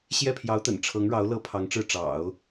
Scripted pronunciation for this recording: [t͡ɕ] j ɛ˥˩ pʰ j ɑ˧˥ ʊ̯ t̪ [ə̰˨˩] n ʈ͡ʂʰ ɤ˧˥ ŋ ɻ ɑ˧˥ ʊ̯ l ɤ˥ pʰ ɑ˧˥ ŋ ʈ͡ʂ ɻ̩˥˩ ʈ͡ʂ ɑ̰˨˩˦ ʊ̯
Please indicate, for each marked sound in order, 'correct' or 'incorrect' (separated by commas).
incorrect, correct